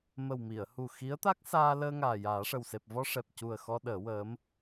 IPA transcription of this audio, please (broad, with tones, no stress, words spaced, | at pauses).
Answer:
mə˨˩w mi˨˩˨ə̯hu˨˩ xi˧˥ə̯t̪a˦˥k̚saː˧ ləː˧ŋaː˨˩ jaː˨˩˦ʂə˨˩wse˨˩p̚ vɔ˧ʂɛ˨˩p̚cu˨˩ə̯ xɔ˧ ɗəː˨˩˦wəː˧˥m